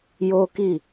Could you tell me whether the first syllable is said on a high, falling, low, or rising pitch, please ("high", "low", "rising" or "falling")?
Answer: high